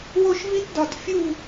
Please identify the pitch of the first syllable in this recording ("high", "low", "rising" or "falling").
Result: falling